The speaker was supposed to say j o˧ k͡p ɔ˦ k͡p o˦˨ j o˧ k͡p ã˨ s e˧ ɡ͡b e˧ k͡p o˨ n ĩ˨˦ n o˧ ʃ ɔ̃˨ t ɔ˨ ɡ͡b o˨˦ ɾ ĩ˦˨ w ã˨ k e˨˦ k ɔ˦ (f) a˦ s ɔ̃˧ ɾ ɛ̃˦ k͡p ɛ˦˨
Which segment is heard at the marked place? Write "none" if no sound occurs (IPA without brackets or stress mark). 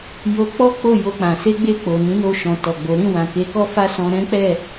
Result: f